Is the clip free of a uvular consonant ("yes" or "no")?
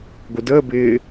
yes